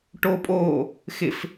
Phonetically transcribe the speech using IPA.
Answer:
ʈ oː pʼ oː | x ɪ f

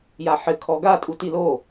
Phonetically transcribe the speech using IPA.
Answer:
j a ħ ɘ kʰ ɔ ɡ a tʼ u t i l o

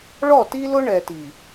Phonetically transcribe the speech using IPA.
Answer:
ɭ ɔ˦˨ t i˦ l ʊ˦ ɳ ɛ˨ t i˨

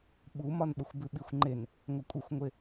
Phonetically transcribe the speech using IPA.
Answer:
ɓ u m ɒ n ɓ ə xʷ b ʉ ɓ i xʷ ŋ͡ǃ e n | ŋʷ ə kʷʼ ɘ xʷ ŋʷ e

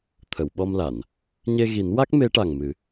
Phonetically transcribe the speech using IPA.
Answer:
t̪ʰ ə˨˩˨ w ɓ ɔ˧ m l a˨˩˨ n | ɲ e˧ ɣ i˨˩˦ n w a˦˥ k̚ m e˧˥ ʈ a˨˩ ŋ m ɨ˨˩˦

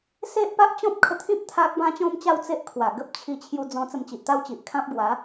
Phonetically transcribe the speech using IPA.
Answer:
s e˦ ʔ p a˦ ʔ t͡ɕ ɔ̃˦ p̚ kʰ ə˧ t̪ʰ ĩ˦ p̚ t̪ʰ a˦ k̚ b ã˦ t͡ɕ ɔ̃˦ m t͡ɕ a˥˧ w t͡s e˦ ʔ kʰ w a˨˩ ɡ ə˦ p̚ t͡ɕʰ i˧ t͡ɕʰ j u˧ d͡z ɔ̃˧ t͡s ə˧ m t͡ɕ i˨ ʔ t̪ a˦ w t͡ɕ i˨ ʔ kʰ ã˦ p̚ ɡ w a˨˦

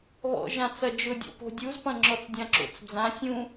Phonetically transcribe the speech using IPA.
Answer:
β ɔ̰ ʒ ã t͡s ɐ d͡ʒ ʊ dʲ ɔ̰ p o̤ dʲ u z p ɐ̃ ŋ͡ǁ ɔ t͡s dʲ ã ǁ o̰ t͡s d͡z ã sʲ ũ

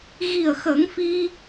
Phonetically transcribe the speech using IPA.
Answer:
ɣ i˨˩ ə̯ x ə˨˩˦ ŋ f i˧

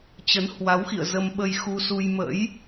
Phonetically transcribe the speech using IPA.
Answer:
t͡ɕ ə˨˦ n h w a˨˦ w x ḭ˧˨ ə̯ z ə˧ m ɓ ə˧ j x u˧ s u˧ j m ə̰˧˥ j

